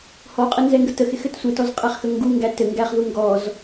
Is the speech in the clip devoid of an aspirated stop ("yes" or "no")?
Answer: yes